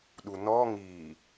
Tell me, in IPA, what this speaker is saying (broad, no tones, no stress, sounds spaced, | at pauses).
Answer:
ɗ u n ɔ ŋ i